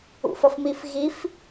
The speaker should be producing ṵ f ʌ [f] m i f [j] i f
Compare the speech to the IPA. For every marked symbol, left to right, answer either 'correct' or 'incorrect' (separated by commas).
correct, incorrect